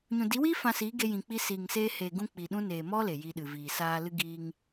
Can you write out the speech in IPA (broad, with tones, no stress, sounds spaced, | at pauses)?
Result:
ɲ ũ˨ d i˨˦ w iː˦ f ã˧ s iː˨˦ ɡ e˧ j ĩ˨ k͡p i˧ s iː˨ ŋ s eː˧ h eː˨ ɡ ũ˧ k͡p i˨ ɗ ũ˦ n eː˨ m ɔ˦ l e˨ j i˧ ɗ ɨ˨ v iː˨ s aː˧ l ɨ˦ ɡ iː˧ ŋ